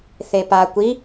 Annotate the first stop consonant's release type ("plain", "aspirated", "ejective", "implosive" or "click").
plain